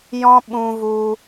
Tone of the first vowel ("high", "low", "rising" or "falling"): high